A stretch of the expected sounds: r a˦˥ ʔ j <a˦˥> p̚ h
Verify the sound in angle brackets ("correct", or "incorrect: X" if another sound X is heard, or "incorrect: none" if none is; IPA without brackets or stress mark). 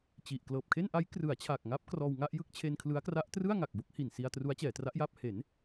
incorrect: a˥˩